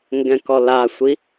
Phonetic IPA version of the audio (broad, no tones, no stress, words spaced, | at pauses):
ŋɡɛ̃kɔlasʷi